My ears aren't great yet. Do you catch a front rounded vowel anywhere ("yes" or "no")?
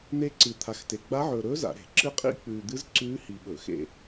no